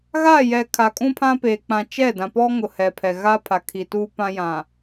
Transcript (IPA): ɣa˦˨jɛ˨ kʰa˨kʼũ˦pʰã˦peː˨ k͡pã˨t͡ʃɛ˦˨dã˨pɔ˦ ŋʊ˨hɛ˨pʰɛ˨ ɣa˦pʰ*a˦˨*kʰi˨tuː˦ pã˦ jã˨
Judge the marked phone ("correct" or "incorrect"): incorrect